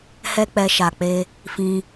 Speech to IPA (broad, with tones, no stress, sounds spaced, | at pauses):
h ɛ˦ k͡p ɛ˧ ʃ a˨ k͡p e˧ | f ĩ˧